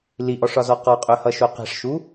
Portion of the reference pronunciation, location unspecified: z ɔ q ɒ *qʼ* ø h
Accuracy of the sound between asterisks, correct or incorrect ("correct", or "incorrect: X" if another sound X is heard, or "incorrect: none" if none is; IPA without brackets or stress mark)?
correct